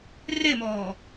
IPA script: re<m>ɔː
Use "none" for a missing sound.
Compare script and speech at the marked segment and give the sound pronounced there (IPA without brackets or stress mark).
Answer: m